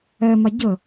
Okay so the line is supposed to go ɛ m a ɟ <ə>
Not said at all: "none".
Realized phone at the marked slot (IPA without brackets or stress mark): ə